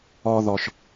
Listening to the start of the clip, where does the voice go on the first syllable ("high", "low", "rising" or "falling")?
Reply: high